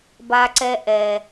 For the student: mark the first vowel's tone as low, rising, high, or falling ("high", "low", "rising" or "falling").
low